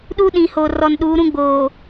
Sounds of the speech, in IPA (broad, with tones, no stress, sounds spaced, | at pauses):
ɗ u˦ ɗ ĩ˨ h o˨ r ɔ˨ n ɗ uː˨˦ ɾ ũ˦ ɡ͡b oː˨